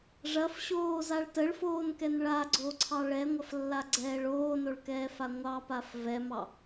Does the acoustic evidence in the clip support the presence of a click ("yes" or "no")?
yes